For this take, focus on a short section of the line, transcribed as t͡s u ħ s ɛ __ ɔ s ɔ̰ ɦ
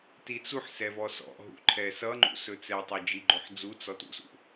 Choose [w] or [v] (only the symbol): v